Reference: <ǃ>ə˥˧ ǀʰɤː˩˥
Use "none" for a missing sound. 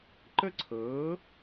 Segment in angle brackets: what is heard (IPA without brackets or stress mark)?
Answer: ǃ